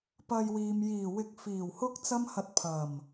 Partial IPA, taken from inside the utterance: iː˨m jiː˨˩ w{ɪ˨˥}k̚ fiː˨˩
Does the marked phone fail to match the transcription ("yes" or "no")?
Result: no